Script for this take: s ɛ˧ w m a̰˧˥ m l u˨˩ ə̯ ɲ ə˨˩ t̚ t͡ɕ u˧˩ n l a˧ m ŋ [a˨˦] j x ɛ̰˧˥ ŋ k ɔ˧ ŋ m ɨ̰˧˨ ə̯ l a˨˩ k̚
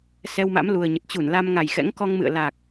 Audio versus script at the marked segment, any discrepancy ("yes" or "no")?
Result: yes